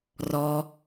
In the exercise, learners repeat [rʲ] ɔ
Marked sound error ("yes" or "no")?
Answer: yes